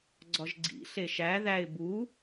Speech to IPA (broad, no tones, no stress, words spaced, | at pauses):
ɡ͡ǀɒʒɡ͡ǀḭ ɬeʃæ ðæɪ̯ bu